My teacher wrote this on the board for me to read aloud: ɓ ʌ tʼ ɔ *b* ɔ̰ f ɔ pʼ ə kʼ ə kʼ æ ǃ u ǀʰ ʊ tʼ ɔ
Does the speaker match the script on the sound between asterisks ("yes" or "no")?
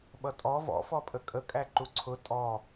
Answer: no